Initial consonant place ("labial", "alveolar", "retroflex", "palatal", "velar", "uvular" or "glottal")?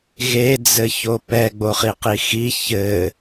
velar